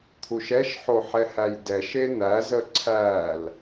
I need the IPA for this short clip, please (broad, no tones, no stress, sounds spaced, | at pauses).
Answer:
t̪ʰ u ʃ ɛ ʃ ħ o ħ ɛ h æ j d ɛ ʃ e n̪ æ z ə ǀʰ æ l